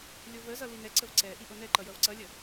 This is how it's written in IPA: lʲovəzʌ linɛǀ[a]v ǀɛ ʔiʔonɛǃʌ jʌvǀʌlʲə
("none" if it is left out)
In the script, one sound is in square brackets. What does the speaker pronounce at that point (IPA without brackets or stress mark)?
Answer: ə